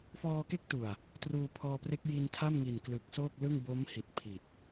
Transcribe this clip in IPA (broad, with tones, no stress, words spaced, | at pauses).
fɔː˧ke˦˥k̚tu˨˩a̯ | truː˧pʰɔː˧pre˦˥k̚ ji˧ntʰa˥˩mŋi˨˩n klɯ˨˩k̚soː˥˩k̚ lɯ˥˩ŋ bo˦˥mhi˨˩t̚ pʰi˨˩t̚